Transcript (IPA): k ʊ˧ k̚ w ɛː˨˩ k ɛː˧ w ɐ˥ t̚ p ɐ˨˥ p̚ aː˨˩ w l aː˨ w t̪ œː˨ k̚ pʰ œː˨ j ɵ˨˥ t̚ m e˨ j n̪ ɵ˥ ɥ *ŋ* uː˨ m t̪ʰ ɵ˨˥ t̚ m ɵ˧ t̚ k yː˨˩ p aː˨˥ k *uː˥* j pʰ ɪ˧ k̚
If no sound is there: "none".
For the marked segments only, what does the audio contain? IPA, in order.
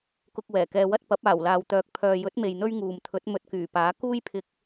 ŋ, uː˥

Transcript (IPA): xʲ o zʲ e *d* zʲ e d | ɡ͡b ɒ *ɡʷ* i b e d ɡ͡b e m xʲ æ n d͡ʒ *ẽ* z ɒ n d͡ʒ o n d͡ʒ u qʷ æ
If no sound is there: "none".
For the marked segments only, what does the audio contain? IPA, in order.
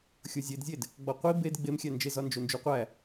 d, qʷ, e

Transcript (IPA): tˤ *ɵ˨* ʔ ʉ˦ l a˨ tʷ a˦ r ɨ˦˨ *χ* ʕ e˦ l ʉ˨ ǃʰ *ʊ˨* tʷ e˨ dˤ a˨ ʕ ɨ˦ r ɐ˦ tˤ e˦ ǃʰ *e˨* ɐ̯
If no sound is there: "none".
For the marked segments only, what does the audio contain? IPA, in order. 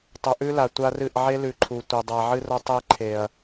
ɵ˨, ʔ, u˨, e˨

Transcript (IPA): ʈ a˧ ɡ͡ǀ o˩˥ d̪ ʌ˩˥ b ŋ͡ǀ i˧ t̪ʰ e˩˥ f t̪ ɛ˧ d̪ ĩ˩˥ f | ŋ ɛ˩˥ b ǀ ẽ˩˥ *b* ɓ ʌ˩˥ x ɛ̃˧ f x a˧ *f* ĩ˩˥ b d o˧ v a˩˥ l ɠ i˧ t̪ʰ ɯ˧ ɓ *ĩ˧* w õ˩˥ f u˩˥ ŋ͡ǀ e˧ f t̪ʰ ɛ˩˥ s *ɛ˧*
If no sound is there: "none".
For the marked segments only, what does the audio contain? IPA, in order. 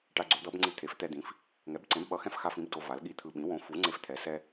b, f, ĩ˩˥, ɛ˧

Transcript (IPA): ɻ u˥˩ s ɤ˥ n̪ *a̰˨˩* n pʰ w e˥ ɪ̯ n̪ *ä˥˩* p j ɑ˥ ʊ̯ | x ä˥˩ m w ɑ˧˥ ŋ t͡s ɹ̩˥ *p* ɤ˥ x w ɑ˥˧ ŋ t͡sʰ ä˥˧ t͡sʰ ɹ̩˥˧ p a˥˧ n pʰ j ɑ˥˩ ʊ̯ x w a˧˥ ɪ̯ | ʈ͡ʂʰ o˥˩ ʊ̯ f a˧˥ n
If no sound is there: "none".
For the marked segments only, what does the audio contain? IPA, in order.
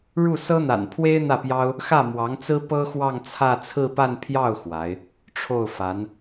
a̰˨˩, ä˥˩, p

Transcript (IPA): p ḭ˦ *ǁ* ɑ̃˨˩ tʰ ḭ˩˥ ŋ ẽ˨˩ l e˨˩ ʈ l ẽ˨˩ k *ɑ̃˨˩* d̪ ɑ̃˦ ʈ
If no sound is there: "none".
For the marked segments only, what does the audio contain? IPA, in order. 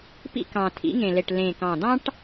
k, ɑ̃˨˩

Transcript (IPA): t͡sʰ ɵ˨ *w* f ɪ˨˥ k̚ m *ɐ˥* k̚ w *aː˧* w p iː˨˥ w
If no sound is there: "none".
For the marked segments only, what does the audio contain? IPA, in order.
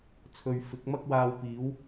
ɥ, ɐ˥, aː˧

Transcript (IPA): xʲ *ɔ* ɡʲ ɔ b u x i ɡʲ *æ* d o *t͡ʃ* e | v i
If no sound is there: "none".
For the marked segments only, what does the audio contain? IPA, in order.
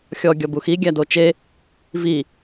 ɔ, æ, t͡ʃ

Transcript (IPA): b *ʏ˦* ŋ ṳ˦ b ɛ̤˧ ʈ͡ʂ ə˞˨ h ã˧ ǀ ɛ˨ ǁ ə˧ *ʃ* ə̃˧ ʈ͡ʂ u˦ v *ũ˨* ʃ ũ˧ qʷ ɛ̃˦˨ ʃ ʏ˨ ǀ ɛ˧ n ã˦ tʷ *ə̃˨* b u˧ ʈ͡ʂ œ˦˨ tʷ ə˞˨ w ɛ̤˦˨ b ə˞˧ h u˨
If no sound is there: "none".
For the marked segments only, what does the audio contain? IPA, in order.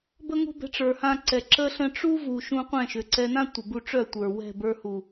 ə˦, ɬ, u˨, ə˨

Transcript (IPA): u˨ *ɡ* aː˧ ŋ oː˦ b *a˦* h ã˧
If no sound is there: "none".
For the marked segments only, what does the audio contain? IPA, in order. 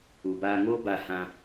b, a˦˨

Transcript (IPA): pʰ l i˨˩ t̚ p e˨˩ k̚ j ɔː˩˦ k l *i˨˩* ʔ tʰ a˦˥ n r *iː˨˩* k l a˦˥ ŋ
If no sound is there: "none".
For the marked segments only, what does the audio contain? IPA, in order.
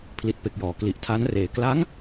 i˨˩, eː˨˩

